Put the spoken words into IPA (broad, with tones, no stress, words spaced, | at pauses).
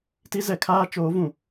ti˦zɛ˨ kʰaː˦t͡ʃoː˨˦vũ˨